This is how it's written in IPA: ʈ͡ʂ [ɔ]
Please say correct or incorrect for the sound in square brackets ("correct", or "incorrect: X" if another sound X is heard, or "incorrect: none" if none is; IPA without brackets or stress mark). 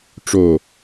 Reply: incorrect: o